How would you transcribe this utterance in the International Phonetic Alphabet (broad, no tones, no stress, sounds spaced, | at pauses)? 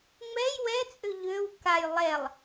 ŋ͡m ɛ j w ɛ t͡sʼ ø ʎ ø w k a j lˠ ɛ lˠ